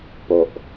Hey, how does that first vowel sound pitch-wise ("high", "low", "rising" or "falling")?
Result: low